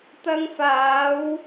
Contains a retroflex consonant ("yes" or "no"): no